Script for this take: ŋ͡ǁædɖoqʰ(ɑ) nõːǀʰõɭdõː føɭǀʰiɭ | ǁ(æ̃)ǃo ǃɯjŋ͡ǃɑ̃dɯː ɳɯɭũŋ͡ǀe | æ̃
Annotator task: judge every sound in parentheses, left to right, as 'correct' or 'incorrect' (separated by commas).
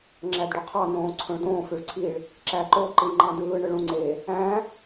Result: correct, incorrect